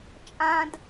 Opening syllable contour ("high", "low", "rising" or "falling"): low